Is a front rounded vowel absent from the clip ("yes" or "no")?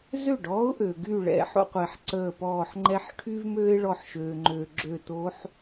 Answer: no